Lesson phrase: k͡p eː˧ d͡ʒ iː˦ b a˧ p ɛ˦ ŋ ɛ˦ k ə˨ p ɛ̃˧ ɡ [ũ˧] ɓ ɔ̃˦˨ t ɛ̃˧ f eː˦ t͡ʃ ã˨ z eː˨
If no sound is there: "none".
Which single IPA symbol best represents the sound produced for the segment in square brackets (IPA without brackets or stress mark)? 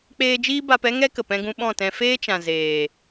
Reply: ũ˧